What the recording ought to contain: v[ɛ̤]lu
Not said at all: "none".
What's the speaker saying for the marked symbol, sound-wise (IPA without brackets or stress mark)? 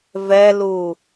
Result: ɛ